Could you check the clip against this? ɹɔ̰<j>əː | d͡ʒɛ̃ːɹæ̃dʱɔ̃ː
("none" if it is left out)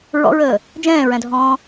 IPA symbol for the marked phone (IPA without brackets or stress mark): ɹ